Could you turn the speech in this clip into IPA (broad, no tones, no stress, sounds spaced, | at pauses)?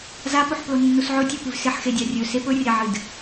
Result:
z a p o ħ p l o nː u s ʕ ɵ tʲ o p ʉ v s e ħ x e dʲ a rʲ ɵ s e p ɵ rʲ a ʕ ɨ d